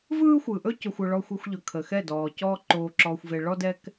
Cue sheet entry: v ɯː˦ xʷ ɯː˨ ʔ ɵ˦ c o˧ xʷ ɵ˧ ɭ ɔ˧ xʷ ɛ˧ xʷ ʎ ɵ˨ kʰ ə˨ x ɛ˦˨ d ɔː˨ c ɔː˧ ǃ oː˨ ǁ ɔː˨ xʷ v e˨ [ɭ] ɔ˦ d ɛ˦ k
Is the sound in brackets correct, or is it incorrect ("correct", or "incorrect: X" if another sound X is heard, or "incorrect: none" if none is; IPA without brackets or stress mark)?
correct